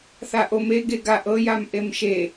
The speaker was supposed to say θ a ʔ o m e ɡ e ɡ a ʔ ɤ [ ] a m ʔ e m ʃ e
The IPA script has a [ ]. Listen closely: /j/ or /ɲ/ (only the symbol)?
j